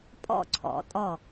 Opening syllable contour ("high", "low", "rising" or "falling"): falling